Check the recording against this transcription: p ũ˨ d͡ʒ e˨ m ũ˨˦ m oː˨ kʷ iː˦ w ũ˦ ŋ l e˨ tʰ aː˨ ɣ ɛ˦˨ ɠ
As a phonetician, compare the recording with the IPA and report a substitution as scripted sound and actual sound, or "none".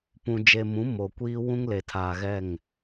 ɠ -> ŋ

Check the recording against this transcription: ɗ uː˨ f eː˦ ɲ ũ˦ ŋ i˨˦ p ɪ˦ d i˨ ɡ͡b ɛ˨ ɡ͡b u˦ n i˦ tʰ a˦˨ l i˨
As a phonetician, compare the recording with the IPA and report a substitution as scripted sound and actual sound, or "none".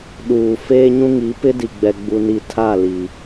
none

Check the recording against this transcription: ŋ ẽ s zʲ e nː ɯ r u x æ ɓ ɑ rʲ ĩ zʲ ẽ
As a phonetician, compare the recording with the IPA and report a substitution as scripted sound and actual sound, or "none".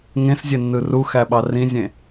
rʲ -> r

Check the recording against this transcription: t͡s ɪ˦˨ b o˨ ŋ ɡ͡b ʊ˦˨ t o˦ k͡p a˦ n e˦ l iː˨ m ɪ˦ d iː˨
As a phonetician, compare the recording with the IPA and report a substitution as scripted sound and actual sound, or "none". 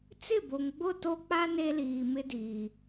none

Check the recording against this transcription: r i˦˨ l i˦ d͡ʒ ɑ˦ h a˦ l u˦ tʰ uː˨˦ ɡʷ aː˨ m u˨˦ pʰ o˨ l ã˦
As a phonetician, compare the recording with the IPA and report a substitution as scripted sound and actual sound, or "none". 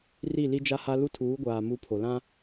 ɑ˦ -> a˦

